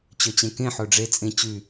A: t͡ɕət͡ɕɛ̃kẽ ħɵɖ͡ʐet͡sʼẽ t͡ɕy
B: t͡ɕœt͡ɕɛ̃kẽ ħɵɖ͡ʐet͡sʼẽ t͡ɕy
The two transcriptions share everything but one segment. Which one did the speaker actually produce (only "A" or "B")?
B